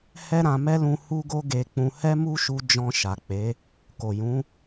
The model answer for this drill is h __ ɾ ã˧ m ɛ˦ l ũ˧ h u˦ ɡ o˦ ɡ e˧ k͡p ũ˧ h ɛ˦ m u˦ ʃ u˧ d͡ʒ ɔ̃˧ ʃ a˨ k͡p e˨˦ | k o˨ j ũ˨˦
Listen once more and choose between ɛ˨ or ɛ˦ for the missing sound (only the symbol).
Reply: ɛ˦